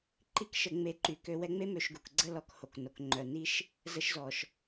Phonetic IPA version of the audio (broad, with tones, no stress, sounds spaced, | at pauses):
ǃ i˥ k ʃ ə˧ ŋ͡m e˧ ǃ y˩ k ø˧ w ɛ˧ ŋ͡m e˥ m ø˧ ʃ ɡ u˩ k ɡ͡ǀ ə˥ l ɔ˧ k h o˩ k n o˩ k ŋ͡ǃ œ˩ n i˥ ʃ | z ə˧ ʃ z ɔ˩ ʃ